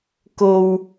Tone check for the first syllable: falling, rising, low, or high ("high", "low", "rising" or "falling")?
low